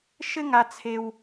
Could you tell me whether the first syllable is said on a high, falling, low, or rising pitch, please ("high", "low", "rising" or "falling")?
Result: high